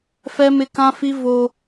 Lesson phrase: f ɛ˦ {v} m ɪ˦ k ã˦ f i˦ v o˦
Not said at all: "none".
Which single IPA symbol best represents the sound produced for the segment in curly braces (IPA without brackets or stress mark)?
none